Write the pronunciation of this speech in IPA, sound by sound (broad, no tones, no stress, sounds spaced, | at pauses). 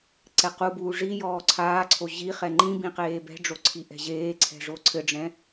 ǀ ɛ q u b uː ʐ i j ɔː ǀʰ aː ǀʰ o ʑ i χ ɛ ŋ͡ǃ ĩ b ĩ q eː b ɛ̤ ɖ͡ʐ o ǀʰ i ʔ ɛ̤ ʑ eː ǀʰ ɛ̤ ʐ o ǀʰ ɘ ɖ͡ʐ ɛ̃